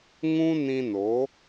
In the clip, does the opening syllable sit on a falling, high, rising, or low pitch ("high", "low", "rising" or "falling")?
high